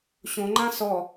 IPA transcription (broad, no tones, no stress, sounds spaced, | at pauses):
ɕ õ ŋ͡ǃ ã s ɔ